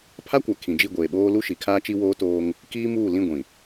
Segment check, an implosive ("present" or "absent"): present